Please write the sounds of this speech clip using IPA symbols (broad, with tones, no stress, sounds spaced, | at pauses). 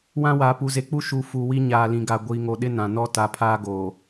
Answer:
w ã˦ w aː˨ p u˨ z e˨ k͡p u˦ ʃ u˨ f u˨ w i˦ ɲ aː˨ l ĩ˨ ɡ a˨ ɡʷ iː˨ ŋ o˨ ɗ ɪ˦ n ã˨ n ɔ˦ t a˨ pʰ aː˦ ɡ oː˨